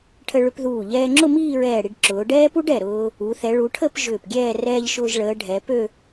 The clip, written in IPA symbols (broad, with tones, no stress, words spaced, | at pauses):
ʈʰə˧ɭʏ˧pðuː˧˩ ʎɛː˧ŋ͡ǁʊ˥˧miː˥˧ɹɛː˧˩ ɽi˧ɖǁʊː˩˧ɖɛː˥pu˥ɖ ɛ˧˩ ɾʊː˧ | u˩˧ θɛ˩˧ɭu˩˧ʈʰə˥˧p ʒʏː˧˩pɡʲɛː˥˧ rɛː˧ʎ ʃʊː˧ʒɭəː˩˧ ɖʱɛ˩˧ pø˥˧